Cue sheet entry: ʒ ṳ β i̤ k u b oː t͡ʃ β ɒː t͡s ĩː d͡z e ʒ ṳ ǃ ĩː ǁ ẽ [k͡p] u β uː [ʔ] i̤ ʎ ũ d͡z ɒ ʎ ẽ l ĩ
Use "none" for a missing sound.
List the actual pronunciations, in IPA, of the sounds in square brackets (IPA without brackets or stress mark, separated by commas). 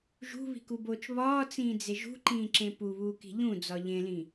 p, k